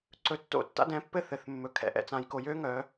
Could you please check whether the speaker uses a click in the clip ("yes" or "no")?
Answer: yes